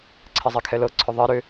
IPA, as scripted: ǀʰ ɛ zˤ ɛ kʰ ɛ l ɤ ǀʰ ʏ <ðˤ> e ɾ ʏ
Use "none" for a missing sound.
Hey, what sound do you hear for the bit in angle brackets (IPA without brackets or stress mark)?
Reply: ðˤ